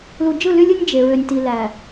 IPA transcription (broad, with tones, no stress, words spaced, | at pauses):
lu˨d͡ʒɯ˦˨ly˦lʲɯ˦nʲ d͡ʒe˨ɹø˨nʲ ti˨læ˨